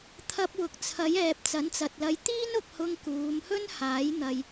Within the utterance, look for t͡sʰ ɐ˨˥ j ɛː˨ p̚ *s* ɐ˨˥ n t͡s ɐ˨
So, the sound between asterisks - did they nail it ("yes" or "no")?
no